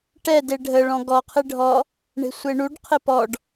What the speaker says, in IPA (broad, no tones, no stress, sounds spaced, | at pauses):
ʈ ɛ d e ɖʱ ə ɭ ɔ̃ ɡ ɔ qʰ ɪ ɖʱ ɔ | ɳ e̤ sʷ e ɳ u ɖ qʰ ɪ p ɔ ɖ